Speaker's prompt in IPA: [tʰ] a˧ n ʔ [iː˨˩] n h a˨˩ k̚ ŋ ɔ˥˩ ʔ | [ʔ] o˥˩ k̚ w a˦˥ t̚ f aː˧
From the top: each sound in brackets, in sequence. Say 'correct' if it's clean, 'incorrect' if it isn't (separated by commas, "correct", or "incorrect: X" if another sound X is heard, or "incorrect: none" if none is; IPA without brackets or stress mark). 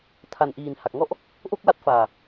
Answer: correct, correct, correct